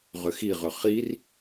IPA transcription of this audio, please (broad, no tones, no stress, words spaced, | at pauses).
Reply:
ʁʏxiʁʏ χir